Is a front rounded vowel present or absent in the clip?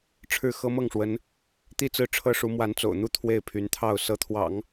present